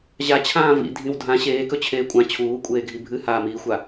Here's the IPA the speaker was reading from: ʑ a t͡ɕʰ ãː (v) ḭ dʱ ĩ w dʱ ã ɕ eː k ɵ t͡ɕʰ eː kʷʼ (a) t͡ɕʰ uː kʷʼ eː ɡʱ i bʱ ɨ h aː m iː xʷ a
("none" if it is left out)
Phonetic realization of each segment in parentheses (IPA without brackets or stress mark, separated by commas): v, ã